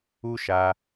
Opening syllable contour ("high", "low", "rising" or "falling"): high